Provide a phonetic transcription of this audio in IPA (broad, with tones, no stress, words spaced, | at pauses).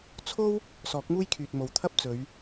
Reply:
t͡sʰo˥w | sɔː˨˥k̚muː˥jkʰyː˨t̚mo˨w t̪ʰɐ˥p̚t͡sɵ˨˧ɥ